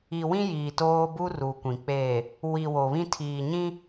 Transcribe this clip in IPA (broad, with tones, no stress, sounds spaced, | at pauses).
i˨ w ĩ˦ j iː˨ t oː˦ b u˦ r u˨ kʷ ĩ˨ k͡p eː˨ | w i˨ w o˨ β ĩ˦ tʰ iː˨ ɲ ĩ˦